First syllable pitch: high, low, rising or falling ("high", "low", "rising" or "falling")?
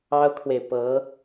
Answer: high